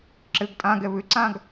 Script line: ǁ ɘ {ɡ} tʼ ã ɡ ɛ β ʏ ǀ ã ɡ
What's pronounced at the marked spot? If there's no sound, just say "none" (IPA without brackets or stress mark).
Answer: ɡ